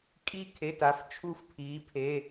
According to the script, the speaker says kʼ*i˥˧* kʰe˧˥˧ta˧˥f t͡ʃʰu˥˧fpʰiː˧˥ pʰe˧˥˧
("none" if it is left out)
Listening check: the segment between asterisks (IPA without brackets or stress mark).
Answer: i˥˧